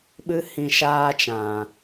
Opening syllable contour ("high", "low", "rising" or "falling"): high